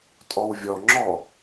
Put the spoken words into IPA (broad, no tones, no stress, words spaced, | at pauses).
tʼɔwvʲɔŋ͡ǁɔ